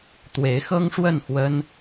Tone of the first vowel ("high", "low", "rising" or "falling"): rising